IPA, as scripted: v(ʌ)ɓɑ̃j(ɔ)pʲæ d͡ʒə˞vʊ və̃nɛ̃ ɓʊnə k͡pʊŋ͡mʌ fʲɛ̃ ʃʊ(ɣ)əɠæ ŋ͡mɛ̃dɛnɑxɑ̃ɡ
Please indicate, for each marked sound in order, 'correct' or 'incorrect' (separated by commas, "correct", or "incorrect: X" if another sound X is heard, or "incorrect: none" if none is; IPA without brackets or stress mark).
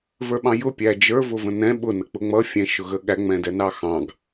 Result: incorrect: ə˞, incorrect: ʊ, correct